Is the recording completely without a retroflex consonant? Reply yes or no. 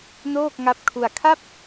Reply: yes